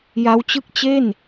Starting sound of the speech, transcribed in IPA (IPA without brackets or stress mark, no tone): j